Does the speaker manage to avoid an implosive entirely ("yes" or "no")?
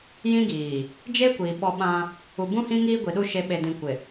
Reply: no